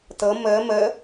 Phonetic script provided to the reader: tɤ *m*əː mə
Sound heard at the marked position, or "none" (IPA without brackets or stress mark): m